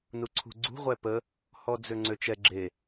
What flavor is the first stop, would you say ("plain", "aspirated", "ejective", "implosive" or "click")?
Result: click